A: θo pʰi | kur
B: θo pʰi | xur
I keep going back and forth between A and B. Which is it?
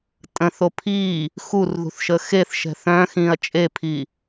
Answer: B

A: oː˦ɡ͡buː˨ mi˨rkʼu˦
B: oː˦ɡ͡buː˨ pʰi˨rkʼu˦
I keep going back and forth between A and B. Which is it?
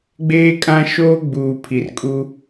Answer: B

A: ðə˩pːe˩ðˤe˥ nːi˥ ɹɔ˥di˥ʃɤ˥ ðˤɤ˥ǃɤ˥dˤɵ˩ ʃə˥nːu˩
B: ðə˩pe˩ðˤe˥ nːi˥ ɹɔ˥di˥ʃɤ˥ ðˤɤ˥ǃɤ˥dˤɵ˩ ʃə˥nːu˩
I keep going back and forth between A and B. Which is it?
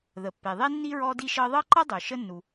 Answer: A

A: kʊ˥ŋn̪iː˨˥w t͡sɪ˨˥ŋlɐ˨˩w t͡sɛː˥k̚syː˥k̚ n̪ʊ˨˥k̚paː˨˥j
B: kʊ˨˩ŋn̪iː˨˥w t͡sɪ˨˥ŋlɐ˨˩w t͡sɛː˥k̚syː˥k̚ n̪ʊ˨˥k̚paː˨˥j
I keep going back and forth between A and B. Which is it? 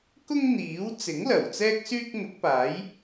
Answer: A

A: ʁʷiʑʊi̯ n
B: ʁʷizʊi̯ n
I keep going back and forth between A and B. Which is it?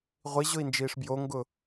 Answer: A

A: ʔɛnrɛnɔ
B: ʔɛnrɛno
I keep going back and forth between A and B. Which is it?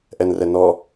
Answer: A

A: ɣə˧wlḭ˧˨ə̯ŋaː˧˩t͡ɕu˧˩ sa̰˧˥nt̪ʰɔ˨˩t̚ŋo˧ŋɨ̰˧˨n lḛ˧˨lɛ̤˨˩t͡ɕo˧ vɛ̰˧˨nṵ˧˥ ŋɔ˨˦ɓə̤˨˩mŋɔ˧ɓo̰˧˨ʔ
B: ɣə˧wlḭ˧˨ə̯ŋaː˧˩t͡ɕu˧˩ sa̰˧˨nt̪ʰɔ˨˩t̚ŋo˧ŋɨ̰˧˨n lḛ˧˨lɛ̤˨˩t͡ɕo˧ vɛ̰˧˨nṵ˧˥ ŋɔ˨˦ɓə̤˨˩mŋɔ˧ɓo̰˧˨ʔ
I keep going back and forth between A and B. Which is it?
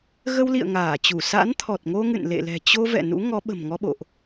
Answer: A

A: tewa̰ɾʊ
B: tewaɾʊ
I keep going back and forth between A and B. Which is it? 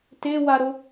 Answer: B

